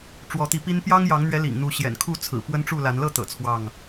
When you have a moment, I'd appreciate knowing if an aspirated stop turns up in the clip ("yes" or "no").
yes